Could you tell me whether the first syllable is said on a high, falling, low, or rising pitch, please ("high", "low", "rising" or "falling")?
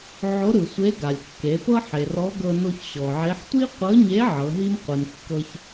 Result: rising